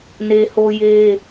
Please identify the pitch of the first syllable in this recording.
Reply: high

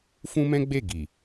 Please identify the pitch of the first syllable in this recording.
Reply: high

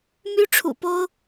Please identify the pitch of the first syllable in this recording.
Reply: high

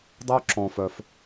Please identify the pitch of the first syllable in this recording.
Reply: high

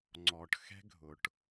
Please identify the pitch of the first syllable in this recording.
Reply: low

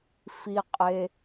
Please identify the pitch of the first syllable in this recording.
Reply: low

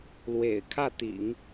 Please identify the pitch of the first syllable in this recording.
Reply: low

